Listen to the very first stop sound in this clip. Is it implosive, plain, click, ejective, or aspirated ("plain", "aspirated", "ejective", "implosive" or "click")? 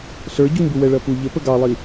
plain